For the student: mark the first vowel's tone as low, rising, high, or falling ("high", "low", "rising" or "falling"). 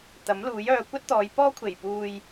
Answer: rising